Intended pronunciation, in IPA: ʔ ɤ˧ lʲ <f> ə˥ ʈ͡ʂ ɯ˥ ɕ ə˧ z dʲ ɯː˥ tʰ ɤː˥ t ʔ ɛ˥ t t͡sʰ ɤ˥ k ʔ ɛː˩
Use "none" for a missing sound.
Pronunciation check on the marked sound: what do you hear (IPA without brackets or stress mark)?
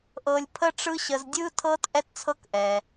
pʰ